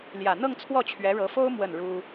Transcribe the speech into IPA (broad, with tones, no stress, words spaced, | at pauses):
ljä˨˩n̪ɤ˥˧ŋt͡sʰwɔ˥˩ t͡ɕʰɥɛ˧˥ɻɤ˧˥fo˥ʊ̯ mwə˥˩nɻu˥